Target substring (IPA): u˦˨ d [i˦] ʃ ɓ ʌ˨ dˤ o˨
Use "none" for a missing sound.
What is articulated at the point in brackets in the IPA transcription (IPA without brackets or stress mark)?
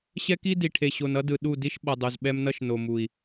i˦